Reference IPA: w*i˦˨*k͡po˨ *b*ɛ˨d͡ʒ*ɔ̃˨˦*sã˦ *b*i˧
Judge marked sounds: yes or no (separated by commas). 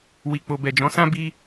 no, yes, yes, yes